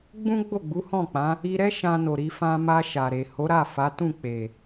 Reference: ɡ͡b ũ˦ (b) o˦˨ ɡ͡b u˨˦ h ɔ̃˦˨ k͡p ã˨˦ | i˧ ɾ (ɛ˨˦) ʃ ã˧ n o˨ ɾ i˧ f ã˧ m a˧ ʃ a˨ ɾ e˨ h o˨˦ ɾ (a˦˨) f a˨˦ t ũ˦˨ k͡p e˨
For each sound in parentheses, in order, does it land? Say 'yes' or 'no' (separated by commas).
no, no, yes